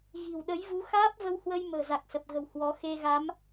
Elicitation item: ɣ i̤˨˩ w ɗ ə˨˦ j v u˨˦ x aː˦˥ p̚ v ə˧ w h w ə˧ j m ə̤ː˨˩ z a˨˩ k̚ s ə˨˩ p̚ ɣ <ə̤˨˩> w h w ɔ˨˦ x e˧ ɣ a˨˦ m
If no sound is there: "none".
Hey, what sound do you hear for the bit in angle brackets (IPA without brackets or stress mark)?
ə̤˨˩